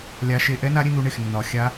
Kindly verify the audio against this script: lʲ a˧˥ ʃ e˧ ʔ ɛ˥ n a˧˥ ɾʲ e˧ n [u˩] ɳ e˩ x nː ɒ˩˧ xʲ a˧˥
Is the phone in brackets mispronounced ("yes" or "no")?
yes